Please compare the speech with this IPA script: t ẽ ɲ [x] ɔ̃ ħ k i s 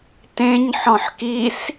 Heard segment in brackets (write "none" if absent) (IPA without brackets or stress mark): ħ